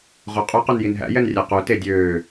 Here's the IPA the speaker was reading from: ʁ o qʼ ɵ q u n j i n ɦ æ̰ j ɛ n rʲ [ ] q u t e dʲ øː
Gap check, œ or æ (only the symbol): æ